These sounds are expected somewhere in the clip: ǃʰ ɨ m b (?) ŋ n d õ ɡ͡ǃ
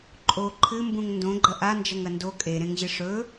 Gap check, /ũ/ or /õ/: ũ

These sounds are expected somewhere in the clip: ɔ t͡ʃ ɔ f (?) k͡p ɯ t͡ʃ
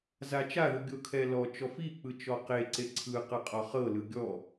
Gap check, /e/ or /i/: i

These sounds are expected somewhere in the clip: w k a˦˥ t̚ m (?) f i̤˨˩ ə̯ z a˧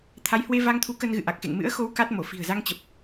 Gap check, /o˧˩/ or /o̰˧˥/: o˧˩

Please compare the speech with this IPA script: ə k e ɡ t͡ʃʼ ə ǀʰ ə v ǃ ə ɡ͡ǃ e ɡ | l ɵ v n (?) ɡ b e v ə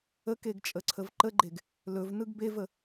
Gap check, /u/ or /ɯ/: ɯ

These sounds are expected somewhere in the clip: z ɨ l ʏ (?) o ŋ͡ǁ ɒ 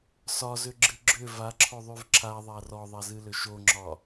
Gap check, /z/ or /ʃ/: ʃ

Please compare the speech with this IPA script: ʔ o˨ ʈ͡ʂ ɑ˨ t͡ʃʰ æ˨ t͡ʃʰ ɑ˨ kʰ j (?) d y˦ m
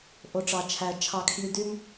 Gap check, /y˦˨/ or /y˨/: y˨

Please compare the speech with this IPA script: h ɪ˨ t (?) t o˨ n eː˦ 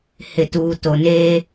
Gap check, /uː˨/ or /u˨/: uː˨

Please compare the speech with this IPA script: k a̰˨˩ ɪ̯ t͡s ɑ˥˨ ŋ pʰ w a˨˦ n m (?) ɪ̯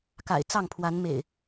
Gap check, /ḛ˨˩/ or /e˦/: ḛ˨˩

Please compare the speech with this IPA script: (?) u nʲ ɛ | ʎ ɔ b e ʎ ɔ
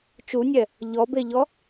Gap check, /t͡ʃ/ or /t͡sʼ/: t͡ʃ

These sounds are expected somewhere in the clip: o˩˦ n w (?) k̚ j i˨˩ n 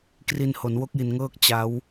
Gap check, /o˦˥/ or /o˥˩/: o˦˥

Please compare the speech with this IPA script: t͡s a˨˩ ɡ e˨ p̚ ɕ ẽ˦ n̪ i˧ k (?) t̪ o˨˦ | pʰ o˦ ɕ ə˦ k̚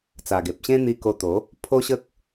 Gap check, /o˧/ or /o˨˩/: o˧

